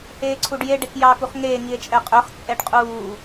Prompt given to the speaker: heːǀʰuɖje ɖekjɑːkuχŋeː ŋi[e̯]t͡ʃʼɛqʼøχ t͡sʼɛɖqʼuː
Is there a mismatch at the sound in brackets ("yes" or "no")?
no